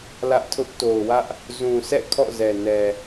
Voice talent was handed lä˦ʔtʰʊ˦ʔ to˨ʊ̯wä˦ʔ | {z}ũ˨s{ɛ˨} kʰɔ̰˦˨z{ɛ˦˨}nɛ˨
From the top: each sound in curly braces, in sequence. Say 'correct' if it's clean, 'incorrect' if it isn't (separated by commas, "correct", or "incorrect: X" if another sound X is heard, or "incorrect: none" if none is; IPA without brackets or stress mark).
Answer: correct, incorrect: ɛ̰˦˨, incorrect: ɛ˨